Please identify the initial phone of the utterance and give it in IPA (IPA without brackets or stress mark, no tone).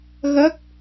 ɣ